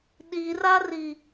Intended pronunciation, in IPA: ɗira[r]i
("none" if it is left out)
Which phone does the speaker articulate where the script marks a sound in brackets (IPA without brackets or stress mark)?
r